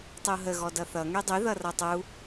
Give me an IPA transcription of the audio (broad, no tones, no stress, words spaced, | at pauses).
tˤuɦə ɣɔdʌθʌ ŋydˤy ðʌrʌtˤu